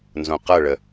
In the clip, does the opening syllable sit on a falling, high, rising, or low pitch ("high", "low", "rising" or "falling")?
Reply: low